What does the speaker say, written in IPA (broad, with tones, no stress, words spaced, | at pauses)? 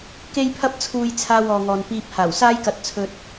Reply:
ke˥jpʰɐ˥p̚t͡sʰuː˧jt͡sʰaː˧w ɔː˨ŋɔː˨n piː˧p̚haː˨˩w saː˥jkɐ˧t̚ t͡sʰɵ˧t̚